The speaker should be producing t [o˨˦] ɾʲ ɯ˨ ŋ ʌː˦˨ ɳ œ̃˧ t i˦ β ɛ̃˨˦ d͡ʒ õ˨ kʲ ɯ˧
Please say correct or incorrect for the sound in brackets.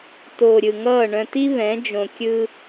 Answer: incorrect